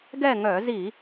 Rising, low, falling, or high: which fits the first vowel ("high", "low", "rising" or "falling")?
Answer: falling